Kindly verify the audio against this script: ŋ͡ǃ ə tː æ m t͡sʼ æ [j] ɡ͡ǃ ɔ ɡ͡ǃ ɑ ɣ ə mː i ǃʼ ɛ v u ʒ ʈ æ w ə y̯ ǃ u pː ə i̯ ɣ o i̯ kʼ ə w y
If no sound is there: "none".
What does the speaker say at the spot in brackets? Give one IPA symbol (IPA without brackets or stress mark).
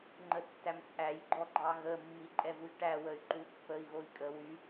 j